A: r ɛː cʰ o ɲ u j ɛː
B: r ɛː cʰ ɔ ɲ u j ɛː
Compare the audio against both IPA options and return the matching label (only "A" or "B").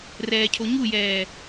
A